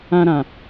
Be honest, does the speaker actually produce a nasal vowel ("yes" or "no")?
yes